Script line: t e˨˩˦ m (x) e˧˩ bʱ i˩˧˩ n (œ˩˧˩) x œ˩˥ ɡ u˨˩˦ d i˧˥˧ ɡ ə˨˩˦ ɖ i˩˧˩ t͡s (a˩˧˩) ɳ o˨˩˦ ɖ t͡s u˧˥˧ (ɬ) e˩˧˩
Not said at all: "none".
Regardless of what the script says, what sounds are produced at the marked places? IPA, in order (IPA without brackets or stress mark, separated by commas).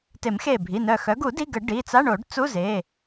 x, œ˧˩, a˧˥˧, z